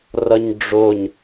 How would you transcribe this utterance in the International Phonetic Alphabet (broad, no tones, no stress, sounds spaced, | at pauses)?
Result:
r ʌ ɲ ɖ͡ʐ o ɲ